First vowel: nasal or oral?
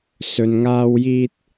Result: oral